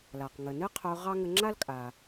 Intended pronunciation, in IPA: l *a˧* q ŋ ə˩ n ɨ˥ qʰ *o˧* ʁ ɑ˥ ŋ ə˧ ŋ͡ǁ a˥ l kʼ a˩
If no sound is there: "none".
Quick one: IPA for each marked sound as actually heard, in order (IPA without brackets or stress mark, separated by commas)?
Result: a˩, o˧